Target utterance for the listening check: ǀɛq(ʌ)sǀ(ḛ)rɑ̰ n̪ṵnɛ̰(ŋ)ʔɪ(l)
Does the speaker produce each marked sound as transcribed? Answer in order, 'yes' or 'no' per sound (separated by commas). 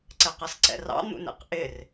yes, no, no, no